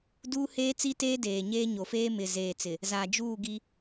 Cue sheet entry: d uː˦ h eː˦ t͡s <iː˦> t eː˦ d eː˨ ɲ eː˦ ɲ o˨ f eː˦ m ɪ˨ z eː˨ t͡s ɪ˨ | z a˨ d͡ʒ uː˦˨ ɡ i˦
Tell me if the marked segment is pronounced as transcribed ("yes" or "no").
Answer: no